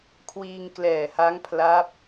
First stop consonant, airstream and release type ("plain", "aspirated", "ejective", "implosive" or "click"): aspirated